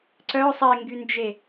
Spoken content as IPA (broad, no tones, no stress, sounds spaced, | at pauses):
ǀ œ sˤ e ŋ ɡ y n d͡ʒ e